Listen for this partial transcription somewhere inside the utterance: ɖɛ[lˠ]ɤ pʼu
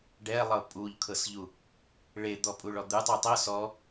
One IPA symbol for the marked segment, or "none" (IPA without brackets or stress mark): lˠ